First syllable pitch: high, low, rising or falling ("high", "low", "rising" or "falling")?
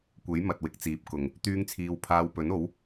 rising